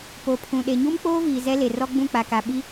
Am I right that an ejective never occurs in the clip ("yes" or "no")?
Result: yes